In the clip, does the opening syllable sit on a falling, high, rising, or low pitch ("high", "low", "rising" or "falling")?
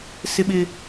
low